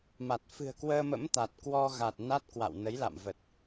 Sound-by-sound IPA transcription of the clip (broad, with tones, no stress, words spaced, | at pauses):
ma˨˩t̚ fɨ̤˨˩ə̯kwəː˧mə̰˧˥m t̪a˨˩t̚ kwɔ˧ɣa˨˩t̚ na˦˥t̚kwa̰˧˨w nə˨˦j la̰˧˨mvə˨˩t̚